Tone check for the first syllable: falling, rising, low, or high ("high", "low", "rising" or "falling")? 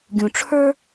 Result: low